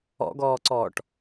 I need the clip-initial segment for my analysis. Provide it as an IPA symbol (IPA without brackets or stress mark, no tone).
ɔ̰